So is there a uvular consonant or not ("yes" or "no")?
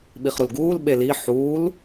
yes